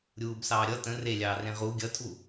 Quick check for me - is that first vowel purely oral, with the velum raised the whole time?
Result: yes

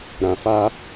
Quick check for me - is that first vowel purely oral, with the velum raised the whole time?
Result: no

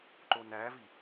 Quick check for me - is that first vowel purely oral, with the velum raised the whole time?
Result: yes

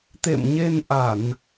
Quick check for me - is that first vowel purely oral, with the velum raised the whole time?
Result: yes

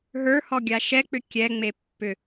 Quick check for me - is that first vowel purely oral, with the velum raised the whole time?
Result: yes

